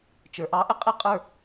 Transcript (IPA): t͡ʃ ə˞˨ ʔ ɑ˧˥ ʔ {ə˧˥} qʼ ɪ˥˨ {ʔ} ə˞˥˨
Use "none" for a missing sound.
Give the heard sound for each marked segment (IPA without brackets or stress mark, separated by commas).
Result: ə˧˥, qʼ